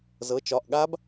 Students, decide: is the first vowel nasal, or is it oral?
oral